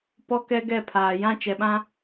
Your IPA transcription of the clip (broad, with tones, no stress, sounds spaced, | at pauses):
p ɔ˦ k ɛ˦ ɡ ɛ˦˨ pʰ aː˨ j ã˦ t͡ʃ ɛ˨ ɓ ã˦